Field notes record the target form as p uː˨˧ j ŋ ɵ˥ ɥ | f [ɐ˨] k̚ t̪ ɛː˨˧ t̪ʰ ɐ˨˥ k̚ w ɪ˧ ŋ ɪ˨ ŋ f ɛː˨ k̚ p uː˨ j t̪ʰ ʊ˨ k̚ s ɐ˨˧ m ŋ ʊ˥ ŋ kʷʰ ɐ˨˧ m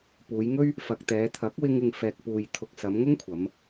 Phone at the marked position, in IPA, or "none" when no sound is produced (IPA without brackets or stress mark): ɐ˨